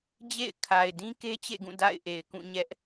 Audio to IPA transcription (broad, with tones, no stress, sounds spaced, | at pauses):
d͡ʑ ḛ˦˨ ɪ̯ kʰ a˨ ɪ̯ d ĩ˦ k e˦ t͡ɕ ḛ˦˨ ɡ ũ˦˨ d a̰˦˨ ɪ̯ ʔ e˨ ɪ̯ k ũ˦˨ ɲ ɛ˦ ʔ